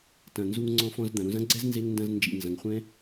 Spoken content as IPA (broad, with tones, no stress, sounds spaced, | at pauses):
t ɐ̃˨ n z u˧ ŋ ŋ͡ǀ ɔ̃˧ f ɔ̃˧ z d̪ ɐ̃˨ ɾ ũ˧ z ɐ̃˦ ɡ͡ǀ ɛ˦ z n z e˧ ŋ n d ɐ̃˧ z n d͡ʒ ḭ˦˨ n z ɐ̃˧ ŋ χʷ ɛ̃˧